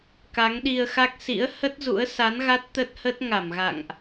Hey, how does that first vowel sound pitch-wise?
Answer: rising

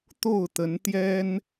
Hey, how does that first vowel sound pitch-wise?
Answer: falling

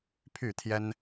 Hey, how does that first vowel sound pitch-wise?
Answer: falling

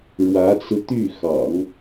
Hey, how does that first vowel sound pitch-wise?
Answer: rising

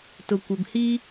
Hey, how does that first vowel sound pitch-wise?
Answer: low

